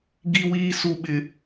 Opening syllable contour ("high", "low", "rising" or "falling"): high